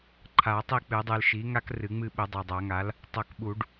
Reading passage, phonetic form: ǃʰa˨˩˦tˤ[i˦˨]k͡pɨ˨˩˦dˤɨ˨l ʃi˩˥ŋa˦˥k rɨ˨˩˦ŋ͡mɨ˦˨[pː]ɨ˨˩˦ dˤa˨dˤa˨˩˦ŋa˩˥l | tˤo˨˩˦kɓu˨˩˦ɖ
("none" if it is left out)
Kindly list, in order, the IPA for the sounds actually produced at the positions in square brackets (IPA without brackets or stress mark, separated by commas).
i˦˨, ɓ